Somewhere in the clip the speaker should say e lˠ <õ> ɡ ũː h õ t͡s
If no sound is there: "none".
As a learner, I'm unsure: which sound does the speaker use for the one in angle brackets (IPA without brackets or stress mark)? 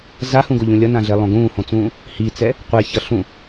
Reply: õ